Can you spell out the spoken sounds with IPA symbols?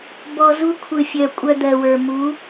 b ɔ˨ z u˧ kʷʰ ɯ˨ fʲ œ˨ kʷʼ œ˧ d̪ ɜ˨ w ə˞˨ m u˨˦

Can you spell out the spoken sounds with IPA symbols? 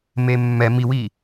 m e mː ɛ m i w i

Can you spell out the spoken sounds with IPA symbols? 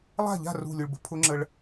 lˠ a̤˥˩ ʎ a̤˥˩ r ṳ˧˩ lʲ u˧ ɭ b ə̤˧˥ pʰ ʊ˧˥ ŋ͡ǁ ə˧ ɭ

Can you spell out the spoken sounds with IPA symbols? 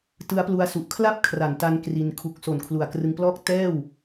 t ɯ˦˥ a̯ p l u˧ a̯ s u˨˩ ʔ kʰ l a˥˩ p̚ kʰ r a˩˦ n t a˧ n k r i˧ n kʰ u˨˩ k̚ s o˨˩ n kʰ l u˨˩ a̯ k r ɯ˧ ŋ p l ɔː˥˩ k̚ t ɛː˥˩ w

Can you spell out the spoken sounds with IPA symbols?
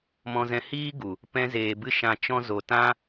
m ɔ̃˧ z ɛ̃˧ h iː˦ ɡ u˨ | p ɛ̃˧ z eː˨ b ɨ˧ ʃ ã˧ t͡ʃ ɔ̃˦ z o˧ t ã˦

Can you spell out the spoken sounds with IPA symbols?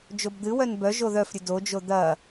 d͡ʒ o b d̪ ɨ w œ n b œ ʒ o ð œ f ɾʲ ɨ d o d͡ʒ o d̪ ɐ

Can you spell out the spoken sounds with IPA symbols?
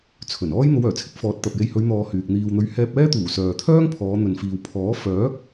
t͡sʰ ɵ˨˩ n ɔː˥ j n̪ o˨˧ w œː˨˩ t͡sʰ ɪ˨˥ k̚ f ɔː˨˥ t̚ t̪ ɐ˨ p̚ j e˧ j h ɵ˨˧ ɥ n̪ ɔː˨ h yː˨ k̚ n̪ iː˨ w n̪ ɵ˨˧ ɥ h ɛː˧ p̚ ɛː˥ t̪ uː˨˩ s œː˨ t̪ʰ œː˥ ŋ pʰ ɔː˨˧ n̪ ɵ˨ n f iː˨ w pʰ ɔː˨˥ f œː˨˥ k̚

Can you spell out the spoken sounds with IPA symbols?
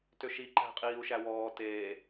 t ø ʃ i ǃ æ̤ qʼ iː u̯ ʃ æ w ɔː t eː

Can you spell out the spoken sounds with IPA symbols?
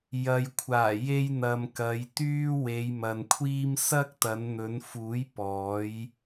j ɐ˨ j kʷʰ aː˨˩ j e˧ j n̪ ɐ˨ m k ɐ˨˧ j t̪ yː˥ w e˨˧ j m ɐ˨ n kʷʰ iː˥ m s ɐ˥ k̚ t̪ ɐ˨˧ n n̪ ɵ˨˧ n f uː˨˥ j p ɔː˨˥ j

